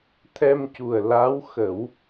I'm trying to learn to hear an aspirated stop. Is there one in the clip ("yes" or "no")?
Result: yes